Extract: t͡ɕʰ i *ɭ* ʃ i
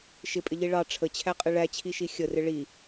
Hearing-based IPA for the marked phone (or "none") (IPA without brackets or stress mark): none